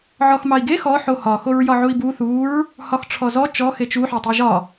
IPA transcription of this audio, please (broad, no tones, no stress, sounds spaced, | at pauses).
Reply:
ʕ ɔ x m ɑ i̯ ɡ e x ɔ ħ o h ɒ x o ɹ j ɒ ʕ u i̯ b u θ u ɹ | h ɒ x ʈ͡ʂʰ ɔ z ɔ t͡ʃ ɔ x e t͡ʃ u ħ ɑ tˤ e ʒ ɒ